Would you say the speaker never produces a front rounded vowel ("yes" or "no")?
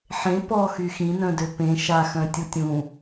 no